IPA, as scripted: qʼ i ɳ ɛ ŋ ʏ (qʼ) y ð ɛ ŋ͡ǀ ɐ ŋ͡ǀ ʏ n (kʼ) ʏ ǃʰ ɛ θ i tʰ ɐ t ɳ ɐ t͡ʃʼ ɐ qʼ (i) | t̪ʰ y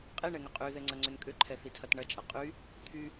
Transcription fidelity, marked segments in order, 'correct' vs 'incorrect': correct, correct, incorrect: y

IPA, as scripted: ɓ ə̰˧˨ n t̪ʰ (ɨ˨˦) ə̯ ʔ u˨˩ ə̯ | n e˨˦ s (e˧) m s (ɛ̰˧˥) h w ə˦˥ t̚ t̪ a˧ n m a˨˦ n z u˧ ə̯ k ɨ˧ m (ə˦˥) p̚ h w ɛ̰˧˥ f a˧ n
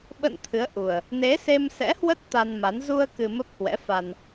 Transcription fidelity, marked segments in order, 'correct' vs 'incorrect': correct, correct, correct, correct

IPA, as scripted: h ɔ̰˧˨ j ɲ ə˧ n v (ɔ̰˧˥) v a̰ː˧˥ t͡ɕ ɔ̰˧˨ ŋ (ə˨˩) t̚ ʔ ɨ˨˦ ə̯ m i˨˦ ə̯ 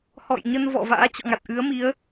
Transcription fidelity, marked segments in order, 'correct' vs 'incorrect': incorrect: ɔ̰˧˨, incorrect: a˨˩

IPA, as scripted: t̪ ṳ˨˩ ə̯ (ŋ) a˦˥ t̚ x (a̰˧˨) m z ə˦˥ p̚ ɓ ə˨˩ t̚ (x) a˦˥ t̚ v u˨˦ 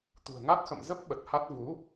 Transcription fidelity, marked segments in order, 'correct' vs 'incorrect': correct, incorrect: ə̰˧˨, incorrect: h

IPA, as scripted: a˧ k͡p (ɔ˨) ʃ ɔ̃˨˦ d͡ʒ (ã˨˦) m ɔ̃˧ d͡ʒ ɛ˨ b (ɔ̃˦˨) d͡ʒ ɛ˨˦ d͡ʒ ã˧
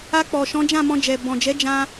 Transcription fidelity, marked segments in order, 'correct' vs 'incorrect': correct, incorrect: ã˦˨, incorrect: ɔ̃˨

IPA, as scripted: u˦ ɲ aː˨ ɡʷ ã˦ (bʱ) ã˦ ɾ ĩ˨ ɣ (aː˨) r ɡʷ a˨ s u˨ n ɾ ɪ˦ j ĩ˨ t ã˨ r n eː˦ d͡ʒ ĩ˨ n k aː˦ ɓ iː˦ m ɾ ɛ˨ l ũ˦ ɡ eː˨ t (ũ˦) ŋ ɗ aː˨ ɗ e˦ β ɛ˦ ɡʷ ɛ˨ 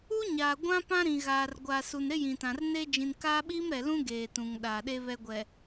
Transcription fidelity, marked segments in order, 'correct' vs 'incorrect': incorrect: p, correct, incorrect: ũ˨

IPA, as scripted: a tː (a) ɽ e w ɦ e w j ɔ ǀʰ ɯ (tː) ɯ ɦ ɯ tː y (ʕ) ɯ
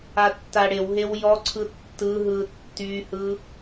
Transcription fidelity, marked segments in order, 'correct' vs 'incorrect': correct, correct, incorrect: h

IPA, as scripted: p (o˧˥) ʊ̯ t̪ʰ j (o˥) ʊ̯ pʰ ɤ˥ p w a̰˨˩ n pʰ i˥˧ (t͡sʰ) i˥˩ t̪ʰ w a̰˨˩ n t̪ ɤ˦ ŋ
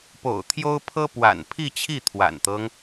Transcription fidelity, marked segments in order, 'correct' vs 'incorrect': incorrect: o̰˨˩, correct, incorrect: t͡ɕʰ

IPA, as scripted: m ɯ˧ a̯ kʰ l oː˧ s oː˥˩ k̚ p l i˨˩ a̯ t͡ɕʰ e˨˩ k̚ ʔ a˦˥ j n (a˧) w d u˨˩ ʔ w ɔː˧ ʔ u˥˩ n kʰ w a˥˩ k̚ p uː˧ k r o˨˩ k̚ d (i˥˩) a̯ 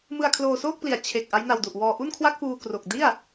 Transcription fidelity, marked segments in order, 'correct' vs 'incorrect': correct, correct

